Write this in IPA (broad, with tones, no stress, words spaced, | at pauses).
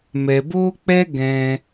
mɛ˧bo˦k͡pɛ˦ɡɛ̃˧